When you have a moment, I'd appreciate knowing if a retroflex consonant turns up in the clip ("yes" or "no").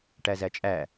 yes